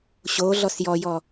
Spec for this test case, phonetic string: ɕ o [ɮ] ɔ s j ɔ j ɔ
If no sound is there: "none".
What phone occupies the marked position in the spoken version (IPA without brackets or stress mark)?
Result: ɮ